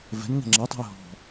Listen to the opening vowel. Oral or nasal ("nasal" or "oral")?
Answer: oral